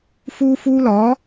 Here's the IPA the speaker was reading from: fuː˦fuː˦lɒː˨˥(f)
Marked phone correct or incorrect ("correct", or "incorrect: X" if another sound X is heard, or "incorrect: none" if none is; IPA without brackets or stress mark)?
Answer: incorrect: none